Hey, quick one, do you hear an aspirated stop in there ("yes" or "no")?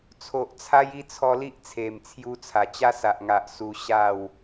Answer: yes